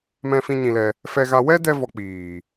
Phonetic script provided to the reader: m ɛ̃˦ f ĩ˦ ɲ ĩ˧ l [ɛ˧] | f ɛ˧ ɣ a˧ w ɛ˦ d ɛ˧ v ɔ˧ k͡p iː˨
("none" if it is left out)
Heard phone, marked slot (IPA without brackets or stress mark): ɛ˧